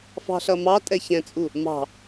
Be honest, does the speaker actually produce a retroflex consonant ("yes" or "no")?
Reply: no